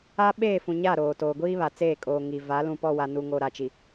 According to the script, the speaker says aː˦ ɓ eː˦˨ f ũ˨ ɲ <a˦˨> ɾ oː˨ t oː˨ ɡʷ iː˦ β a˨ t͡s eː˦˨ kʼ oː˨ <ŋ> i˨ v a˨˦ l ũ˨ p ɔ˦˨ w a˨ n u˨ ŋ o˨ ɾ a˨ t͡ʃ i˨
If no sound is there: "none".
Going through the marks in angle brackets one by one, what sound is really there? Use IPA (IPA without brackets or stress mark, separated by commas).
a˦˨, ŋ